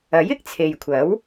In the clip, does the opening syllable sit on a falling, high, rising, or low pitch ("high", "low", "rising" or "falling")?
rising